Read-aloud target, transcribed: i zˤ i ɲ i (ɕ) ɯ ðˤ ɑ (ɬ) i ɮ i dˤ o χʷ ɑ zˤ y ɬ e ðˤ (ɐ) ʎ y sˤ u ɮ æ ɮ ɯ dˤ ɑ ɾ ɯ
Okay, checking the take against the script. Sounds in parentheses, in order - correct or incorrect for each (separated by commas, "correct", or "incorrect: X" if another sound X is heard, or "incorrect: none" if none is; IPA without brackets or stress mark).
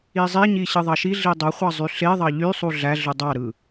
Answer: correct, incorrect: ʃ, incorrect: ɑ